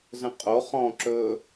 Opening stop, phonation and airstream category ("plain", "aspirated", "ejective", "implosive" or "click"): ejective